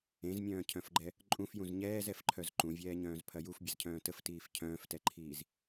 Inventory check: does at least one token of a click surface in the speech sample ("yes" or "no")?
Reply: yes